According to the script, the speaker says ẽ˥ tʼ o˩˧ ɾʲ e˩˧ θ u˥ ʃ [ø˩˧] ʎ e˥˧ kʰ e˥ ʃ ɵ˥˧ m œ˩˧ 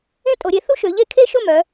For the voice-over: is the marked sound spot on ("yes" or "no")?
yes